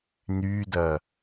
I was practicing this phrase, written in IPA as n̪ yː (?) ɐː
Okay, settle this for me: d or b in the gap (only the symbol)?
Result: d